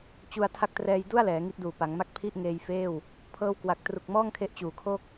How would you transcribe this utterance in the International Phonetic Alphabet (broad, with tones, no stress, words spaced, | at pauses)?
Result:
t͡ɕu˧a̯ tʰa˦˥k̚trɛː˧j du˥˩a̯lɛː˩˦ ŋi˦˥t̚duː˨˩ pa˩˦ŋma˥˩k̚ pʰi˥˩ʔ ŋeː˧jfeː˥˩w | pʰɤː˧wkwa˨˩k̚ tru˨˩k̚mɔː˥˩ŋkʰe˦˥ʔ t͡ɕuː˨˩kʰo˥˩k̚